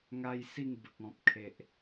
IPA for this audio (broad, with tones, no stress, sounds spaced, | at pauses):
ŋ a˦ j s i˥˧ ŋ b ə˨ k̚ ɔ̃˨ p̚ kʰ e˨ ʔ